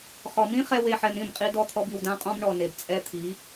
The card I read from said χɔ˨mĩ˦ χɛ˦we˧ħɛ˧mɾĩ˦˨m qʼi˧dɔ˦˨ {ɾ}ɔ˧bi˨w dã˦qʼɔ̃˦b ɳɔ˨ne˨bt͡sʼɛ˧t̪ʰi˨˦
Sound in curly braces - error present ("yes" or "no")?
yes